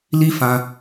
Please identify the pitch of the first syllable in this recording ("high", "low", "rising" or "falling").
high